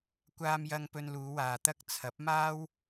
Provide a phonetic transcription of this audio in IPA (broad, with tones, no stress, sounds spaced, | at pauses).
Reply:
kʷ aː˧ m j ɐ˧ ŋ p ɵ˧ n l uː˨˧ w aː˨ t̪ ɐ˥ k̚ t͡sʰ ɐ˨˥ p̚ m aː˥ w